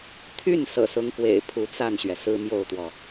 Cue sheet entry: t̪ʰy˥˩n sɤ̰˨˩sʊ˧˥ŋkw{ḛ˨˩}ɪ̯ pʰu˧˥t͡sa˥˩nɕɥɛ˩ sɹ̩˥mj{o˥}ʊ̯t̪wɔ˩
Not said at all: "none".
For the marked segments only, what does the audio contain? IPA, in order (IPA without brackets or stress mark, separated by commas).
ḛ˨˩, o˥˩